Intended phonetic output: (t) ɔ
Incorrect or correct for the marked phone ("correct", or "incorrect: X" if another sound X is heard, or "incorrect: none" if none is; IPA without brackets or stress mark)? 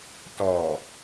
correct